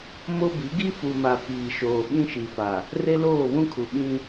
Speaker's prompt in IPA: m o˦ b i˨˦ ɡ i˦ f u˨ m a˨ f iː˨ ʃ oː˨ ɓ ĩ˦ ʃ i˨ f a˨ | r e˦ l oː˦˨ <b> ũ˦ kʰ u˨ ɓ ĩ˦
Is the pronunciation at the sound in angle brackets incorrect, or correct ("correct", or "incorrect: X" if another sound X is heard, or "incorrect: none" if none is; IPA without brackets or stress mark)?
incorrect: β